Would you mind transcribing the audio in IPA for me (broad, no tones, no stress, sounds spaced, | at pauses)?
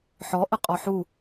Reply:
ħ ɔ ʔ ə qʼ ɔ ħ u